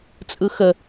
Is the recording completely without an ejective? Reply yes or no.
no